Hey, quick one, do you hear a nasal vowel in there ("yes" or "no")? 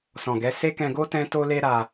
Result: yes